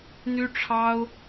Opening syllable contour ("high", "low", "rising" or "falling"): high